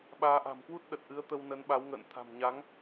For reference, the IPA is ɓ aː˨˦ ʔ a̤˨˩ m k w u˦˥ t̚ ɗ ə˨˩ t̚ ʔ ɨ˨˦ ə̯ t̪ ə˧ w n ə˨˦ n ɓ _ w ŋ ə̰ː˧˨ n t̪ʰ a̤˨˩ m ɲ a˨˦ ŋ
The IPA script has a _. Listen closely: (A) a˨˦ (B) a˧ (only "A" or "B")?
A